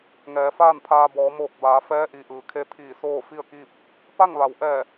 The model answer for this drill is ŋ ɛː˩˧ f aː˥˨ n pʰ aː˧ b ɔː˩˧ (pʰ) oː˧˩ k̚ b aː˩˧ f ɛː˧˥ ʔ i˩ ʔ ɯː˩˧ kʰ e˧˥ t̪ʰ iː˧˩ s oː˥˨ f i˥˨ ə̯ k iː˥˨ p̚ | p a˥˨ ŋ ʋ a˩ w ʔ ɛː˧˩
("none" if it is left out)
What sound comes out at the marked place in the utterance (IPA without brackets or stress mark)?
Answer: m